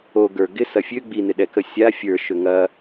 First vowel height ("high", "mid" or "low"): mid